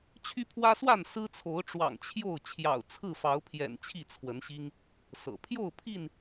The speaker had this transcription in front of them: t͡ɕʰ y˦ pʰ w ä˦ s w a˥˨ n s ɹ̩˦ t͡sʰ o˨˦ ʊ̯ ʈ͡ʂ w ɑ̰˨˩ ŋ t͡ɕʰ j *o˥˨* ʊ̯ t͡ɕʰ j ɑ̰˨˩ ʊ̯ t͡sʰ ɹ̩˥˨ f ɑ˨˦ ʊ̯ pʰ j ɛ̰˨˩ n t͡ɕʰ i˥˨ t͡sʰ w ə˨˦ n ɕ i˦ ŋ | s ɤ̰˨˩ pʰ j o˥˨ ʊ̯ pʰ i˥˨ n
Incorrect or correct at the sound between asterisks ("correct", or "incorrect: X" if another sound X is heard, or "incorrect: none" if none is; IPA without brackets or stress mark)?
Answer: correct